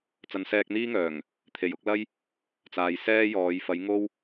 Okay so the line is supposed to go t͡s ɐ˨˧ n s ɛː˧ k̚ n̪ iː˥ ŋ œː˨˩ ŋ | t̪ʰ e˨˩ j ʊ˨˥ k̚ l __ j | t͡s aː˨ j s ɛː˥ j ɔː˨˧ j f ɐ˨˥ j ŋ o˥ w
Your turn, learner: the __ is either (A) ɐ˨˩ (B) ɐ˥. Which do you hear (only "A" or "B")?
B